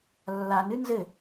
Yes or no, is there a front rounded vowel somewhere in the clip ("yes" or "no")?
no